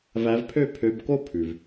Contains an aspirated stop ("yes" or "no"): yes